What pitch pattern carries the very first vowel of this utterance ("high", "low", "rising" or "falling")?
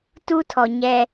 high